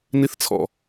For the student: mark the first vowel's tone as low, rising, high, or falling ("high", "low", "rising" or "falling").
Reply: high